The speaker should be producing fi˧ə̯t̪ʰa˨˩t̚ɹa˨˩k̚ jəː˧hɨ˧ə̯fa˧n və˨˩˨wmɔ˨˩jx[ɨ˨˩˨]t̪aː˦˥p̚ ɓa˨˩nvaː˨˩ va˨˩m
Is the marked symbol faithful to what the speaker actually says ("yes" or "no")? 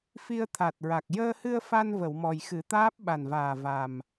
no